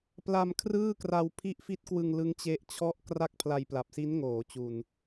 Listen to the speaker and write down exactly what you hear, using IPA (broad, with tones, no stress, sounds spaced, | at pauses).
p l a˧ m kʰ r ɯː˥˩ k r a˧ w pʰ i˦˥ ʔ f i˦˥ t̚ k w ɯ˧ ŋ l ɯ˦˥ ŋ t͡ɕ e˦˥ ʔ t͡ɕʰ ɔ˥˩ ʔ k r a˥˩ k̚ pʰ l a˧ j p l a˨˩ p̚ s i˦˥ n ŋ oː˩˦ t͡ɕ u˨˩ n